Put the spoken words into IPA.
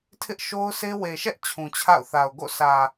tʰ ɪ˦ ʔ ʃ o˦ ʊ̯ s e˦ w e˨ ʃ ɛ˦ ʔ t͡ɕʰ ũ˨ t͡ɕʰ a̰˦˨ ʊ̯ θ a˨ ʊ̯ ɡ o̰˦˨ s ä˨

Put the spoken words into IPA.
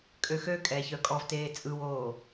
kʼ ø x ø kʼ ɛ ç œ kʼ ɔ v t eː t͡sʼ ɯ w oː

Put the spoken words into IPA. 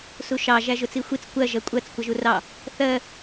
s u ʃ ɑ ʒ æ ʒ ʊ t͡s i xʷ i t͡s kʷ ɜ ʒ ɜ kʷʼ ɜ t͡s kʷ ʌ ʒ u r ɑ | θ ɜ

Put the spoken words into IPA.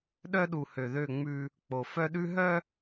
ɗ œ˦ ɗ u˨ h ø˨ ð ø˦˨ ŋ͡m ʉ˦ | k͡p o˨ f œ˦ ɗ ʉ˦ ɦ œ˦

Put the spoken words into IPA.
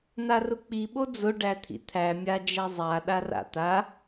n̪ a r ʊ k͡p i ɓ o d͡z ʊ ɖ æ t̪ʰ ḭ t̪ʰ æ mʲ a d͡ʒ æ zˤ a ɗ a r a̰ t̪ a

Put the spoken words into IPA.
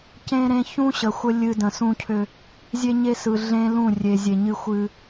c ẽ˦ ɾ ẽ˦ ç ũ˦ ɕ ə˨ xʷ ə˦ lʲ ɨ˦ d ə̃˨ s ũ˦ cʰ ʏ˦ | zʲ e˦ ɲ e˦ s ɯ˨ ɮ ẽ˦ l ũ˦˨ rʲ e˨ zʲ e˨ ɲ ɨ˦ xʷ ɨ˦

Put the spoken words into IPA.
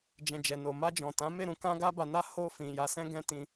d͡ʒ ɛ̃˨ d͡ʒ ɛ˨ n o˨ m a˧ d͡ʒ ɔ̃˨ t ã˨˦ m e˦˨ ɾ ũ˧ k ã˧ ɡ a˦ b a˧ n a˦ h o˧ f ĩ˨ j a˧ s ɛ̃˦ ɡ ɛ̃˦ t ĩ˧

